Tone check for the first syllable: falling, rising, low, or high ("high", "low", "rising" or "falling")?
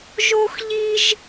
high